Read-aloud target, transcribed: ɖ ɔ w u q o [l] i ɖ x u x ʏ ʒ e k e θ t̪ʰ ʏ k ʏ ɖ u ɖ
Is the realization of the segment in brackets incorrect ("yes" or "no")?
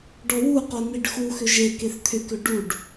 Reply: yes